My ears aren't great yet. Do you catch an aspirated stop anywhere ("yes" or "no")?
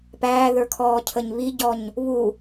yes